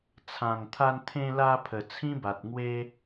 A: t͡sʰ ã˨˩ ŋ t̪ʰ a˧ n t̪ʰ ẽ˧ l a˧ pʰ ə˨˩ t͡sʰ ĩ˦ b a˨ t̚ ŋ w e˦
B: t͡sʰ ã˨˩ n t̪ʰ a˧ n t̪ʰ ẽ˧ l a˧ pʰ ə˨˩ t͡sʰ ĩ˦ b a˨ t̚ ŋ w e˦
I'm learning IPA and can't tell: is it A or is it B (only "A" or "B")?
A